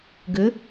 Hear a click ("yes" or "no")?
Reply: no